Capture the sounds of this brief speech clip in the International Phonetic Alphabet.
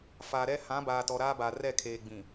faː˨ɾɛ˦ hã˨˦baː˨ tɔ˨ɾaː˦ba˨ rɛ˦˨kʰeː˨ɡ͡bĩ˨

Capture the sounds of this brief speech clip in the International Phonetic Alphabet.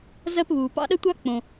zɜ˥pβuː˩ pɑ̰˥ɗə˥tʷɑ˥ k͡põ˩

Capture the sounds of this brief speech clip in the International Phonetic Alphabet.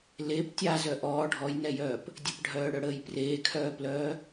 lep tʲazœ ʔɔː ɖʱɔjnɛjœːp | dʲəpɖʱœːɽœɽəːj preːkʰœːplœː

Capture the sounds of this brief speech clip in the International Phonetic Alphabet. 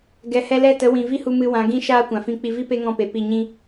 ɡɛ˨hɛ˧lɛ˦˨tə˨˦ wĩ˨ vi˦hu˧ mɨ˧wã˨˦ ɡĩ˦ ʃaː˦kʷã˨fĩ˦˨ k͡pi˧vi˦ pe˦ŋɔ̃˦˨pe˨ pi˦˨ɲĩ˦

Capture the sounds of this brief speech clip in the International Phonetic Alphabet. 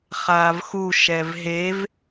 χaːvxu ʃɛvɦev

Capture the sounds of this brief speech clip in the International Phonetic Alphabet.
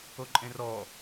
oǃʼẽrɔ

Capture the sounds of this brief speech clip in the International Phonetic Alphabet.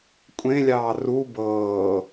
kʷʼẽlʲɑː ru bɤː

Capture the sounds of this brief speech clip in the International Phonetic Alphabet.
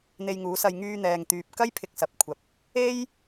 n̪e˧jŋuː˨˥sɐ˧j ŋyː˧n̪ɛː˨ŋ t̪yː˨p̚kɐ˥j pʰɪ˧k̚sɐ˨p̚kʷʰɐ˨p̚ | e˥j

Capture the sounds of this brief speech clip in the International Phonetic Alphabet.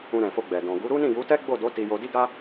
ũ˧ɾɛ̃˨fo˧ɡ͡bɛ˨ dɔ̃˨ɡu˨˦ ɾu˦nĩ˦˨ju˨˦tɛ˦ ɡ͡bo˦˨do˨˦ ti˧jo˧di˦ɡa˦

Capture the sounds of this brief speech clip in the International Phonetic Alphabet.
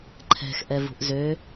ǃʰɛ̤x ʔɛvṳʔzø

